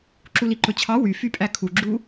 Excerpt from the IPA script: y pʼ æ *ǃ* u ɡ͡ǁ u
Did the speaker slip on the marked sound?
yes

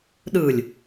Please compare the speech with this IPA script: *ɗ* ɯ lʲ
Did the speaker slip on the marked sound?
no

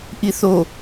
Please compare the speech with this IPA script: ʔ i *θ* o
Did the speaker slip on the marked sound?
no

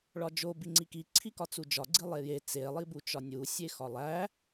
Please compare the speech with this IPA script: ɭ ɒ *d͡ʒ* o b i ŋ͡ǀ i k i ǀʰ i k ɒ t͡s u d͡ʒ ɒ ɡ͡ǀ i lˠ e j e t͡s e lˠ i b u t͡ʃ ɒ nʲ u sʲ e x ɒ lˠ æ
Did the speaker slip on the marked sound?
no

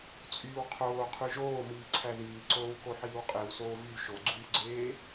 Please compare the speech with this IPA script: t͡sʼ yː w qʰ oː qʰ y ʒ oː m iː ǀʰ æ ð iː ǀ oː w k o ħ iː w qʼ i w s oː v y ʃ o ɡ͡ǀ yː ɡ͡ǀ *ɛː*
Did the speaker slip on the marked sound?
yes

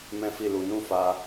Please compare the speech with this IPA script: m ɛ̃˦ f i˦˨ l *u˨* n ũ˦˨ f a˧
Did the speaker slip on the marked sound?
yes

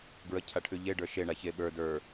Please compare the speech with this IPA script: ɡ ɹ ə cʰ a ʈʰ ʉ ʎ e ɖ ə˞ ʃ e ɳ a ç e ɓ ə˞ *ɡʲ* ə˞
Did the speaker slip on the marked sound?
yes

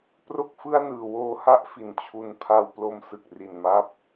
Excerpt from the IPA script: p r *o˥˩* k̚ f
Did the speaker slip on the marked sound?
no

